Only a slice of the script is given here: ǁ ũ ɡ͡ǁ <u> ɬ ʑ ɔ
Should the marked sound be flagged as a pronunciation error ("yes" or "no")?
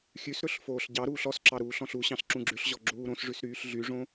yes